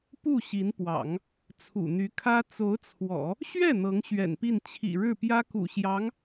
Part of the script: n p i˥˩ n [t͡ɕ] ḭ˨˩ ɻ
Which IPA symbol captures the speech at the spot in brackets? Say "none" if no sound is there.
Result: t͡ɕʰ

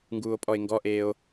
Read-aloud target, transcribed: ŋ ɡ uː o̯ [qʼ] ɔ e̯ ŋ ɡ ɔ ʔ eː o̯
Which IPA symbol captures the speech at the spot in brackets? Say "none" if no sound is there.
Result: pʼ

